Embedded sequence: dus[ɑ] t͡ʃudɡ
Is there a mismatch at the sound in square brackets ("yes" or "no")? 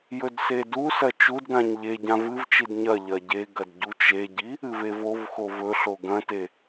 yes